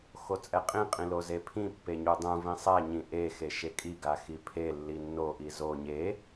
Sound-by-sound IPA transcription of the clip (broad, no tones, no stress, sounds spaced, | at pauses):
x o t͡sʼ ɛ qʼ ĩ qʼ ĩ l o z e pʰ ĩ pː e ɲ u dˤ ũ v ĩ sˤ ɛ ɲ ĩ ʔ e x e ʃ e kʼ i ɡ a x i pʰ e lː i nː o ʔ i z o ɲ e